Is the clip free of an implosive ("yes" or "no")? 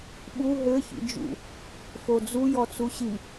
no